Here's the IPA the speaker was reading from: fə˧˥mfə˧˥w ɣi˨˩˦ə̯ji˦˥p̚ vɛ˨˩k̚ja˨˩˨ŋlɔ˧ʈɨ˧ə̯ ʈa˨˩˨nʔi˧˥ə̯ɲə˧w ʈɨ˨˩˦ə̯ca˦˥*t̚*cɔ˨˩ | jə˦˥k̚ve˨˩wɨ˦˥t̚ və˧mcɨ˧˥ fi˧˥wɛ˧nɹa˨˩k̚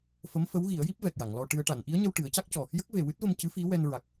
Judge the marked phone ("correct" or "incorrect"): incorrect